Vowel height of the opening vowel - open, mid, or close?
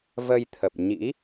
mid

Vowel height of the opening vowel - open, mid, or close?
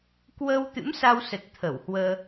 mid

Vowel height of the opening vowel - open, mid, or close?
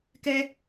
mid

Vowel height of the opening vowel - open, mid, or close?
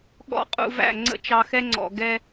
mid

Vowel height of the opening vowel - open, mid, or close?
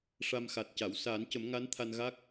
open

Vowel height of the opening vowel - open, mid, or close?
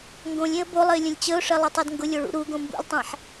mid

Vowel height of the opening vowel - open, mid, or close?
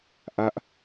open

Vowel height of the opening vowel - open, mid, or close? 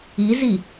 close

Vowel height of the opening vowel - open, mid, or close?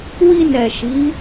close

